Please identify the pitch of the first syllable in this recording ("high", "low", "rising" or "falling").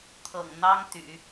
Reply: low